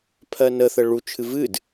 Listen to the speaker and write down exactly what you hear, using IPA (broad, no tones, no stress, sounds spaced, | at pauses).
pʰ ɜ n ə θ ə ɭ u t͡ʃʰ ɨ v ɨ d